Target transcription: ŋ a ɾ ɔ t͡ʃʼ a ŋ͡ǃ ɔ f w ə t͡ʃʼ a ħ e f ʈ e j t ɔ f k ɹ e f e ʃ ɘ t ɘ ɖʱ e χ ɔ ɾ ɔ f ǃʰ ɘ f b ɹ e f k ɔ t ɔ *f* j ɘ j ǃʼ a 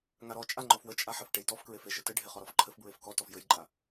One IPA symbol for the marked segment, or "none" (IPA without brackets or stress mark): f